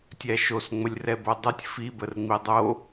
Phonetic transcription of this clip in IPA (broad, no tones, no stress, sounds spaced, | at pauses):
tʲ æ ʃ o s ŋ͡m ə lʲ r ɛ b o dˤ ɯ tʲ f i b ə r ŋ͡m i dˤ o